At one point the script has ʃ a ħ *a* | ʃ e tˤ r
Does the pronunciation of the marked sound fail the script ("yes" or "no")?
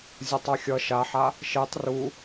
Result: no